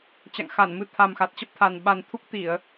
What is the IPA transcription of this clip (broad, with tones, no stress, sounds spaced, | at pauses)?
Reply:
t͡ɕ a̰˧˨ ŋ x a˧˩ n m ɨ˨˦ t̪ʰ a˨˩ m x a˨˩ t̚ t͡ɕ ə˦˥ p̚ t̪ʰ a˨˩ n ɓ a˨˩ n t̪ʰ u˦˥ k̚ t̪ i˧˩˨ ə̯